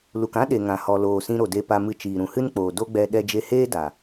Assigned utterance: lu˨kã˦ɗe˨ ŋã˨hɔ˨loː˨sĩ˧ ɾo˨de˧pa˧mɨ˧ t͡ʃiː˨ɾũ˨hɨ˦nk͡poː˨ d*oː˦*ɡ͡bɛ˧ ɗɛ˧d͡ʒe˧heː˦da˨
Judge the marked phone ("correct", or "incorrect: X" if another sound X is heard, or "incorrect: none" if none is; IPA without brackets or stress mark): incorrect: o˦